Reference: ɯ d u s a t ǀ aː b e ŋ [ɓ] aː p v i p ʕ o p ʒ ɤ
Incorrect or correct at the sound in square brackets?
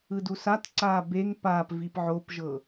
incorrect: p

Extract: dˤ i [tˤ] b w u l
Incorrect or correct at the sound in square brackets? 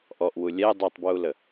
correct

